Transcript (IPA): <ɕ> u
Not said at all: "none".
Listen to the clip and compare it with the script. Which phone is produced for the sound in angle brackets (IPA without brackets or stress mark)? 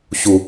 ɕ